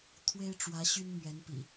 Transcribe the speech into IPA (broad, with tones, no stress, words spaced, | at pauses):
t̪ʰwe˦ɪ̯ʈ͡ʂwä˨˦ ɕy˦nmɥɛ˨˦npḭ˨˩